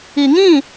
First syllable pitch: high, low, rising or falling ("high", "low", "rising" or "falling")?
low